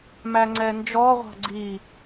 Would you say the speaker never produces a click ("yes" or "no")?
no